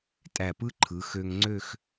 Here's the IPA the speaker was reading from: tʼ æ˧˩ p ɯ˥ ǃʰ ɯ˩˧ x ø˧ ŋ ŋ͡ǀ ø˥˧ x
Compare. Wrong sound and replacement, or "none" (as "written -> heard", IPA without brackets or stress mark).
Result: none